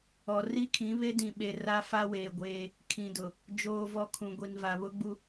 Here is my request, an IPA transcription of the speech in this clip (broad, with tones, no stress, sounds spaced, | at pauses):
ɔ˨ r i˦ kʰ ĩ˨˦ β e˦ d ĩ˨ ɓ e˨ r a˦ f a˦ w eː˨ ɡʷ eː˦ | kʰ ĩ˨ d ʊ˨ | d͡ʒ oː˨ v ɔ˨ kʰ ũ˨ ɡʷ i˨ n v a˨ β ʊ˦ ɡ͡b u˦